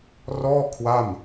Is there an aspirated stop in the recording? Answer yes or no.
yes